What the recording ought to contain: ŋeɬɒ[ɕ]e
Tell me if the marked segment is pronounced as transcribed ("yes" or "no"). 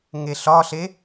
no